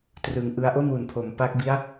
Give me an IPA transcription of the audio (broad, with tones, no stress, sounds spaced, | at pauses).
t r ɯː˨˩ ŋ ʔ ɯ˧ a̯ ʔ o˥˩ n w u˩˦ n pʰ o˩˦ m p a˦˥ k̚ b i˦˥ a̯